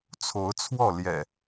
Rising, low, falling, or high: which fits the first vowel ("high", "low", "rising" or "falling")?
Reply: rising